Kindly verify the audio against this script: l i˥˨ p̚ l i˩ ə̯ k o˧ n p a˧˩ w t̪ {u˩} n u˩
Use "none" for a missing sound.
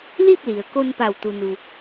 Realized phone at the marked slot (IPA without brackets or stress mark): u˩